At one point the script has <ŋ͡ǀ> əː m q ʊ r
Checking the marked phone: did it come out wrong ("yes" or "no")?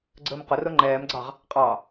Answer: yes